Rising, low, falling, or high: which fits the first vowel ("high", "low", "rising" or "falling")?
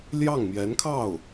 falling